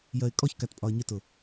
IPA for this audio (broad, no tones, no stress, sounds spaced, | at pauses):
j ɜ ɪ̯ kʼ ɔ ç k æ t pʼ ɒ ə̯ ɲ ɪ t ʊ